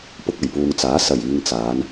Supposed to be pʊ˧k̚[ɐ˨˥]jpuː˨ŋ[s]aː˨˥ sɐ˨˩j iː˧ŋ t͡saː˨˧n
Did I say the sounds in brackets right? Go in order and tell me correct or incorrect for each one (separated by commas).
incorrect, incorrect